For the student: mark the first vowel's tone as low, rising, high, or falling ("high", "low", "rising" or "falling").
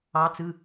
rising